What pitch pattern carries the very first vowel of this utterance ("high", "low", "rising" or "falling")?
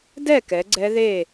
falling